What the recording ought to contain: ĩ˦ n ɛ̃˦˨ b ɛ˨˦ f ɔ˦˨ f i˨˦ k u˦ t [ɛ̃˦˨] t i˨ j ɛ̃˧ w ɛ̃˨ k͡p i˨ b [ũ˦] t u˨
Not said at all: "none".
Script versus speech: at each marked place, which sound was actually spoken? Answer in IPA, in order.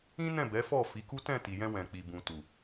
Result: ɛ̃˦˨, ũ˨

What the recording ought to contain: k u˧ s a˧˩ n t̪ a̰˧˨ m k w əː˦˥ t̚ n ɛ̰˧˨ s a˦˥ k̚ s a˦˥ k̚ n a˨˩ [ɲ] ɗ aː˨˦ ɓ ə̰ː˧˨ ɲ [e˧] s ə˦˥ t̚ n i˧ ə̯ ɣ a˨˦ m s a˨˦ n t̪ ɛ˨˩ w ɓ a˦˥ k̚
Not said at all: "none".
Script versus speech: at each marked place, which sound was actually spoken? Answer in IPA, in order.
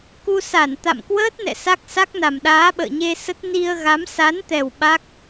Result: m, e˧

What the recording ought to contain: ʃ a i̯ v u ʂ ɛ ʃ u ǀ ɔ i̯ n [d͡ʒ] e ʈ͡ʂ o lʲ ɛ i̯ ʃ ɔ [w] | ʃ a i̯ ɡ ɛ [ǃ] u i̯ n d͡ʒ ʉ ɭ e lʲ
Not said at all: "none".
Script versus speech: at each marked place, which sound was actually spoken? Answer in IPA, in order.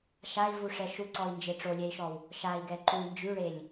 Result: d͡ʒ, w, ǃ

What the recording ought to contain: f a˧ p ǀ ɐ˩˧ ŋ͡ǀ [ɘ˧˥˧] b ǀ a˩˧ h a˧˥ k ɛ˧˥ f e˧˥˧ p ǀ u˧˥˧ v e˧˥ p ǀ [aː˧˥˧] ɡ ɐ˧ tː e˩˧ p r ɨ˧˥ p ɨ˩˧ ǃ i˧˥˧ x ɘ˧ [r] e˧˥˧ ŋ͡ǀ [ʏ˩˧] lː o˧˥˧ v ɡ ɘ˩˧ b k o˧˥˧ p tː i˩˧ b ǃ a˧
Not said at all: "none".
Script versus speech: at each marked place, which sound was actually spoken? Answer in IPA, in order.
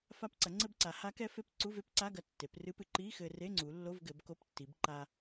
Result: ɘ˧, a˧˥˧, r, u˩˧

